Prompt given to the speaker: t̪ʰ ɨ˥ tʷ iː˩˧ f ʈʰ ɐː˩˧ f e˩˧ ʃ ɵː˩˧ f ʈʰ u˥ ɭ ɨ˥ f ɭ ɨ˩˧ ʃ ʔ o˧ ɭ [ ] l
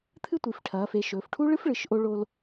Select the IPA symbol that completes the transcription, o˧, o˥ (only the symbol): o˧